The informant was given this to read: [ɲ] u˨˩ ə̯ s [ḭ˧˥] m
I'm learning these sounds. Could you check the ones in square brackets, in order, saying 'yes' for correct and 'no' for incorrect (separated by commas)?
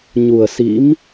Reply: yes, yes